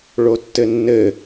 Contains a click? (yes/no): no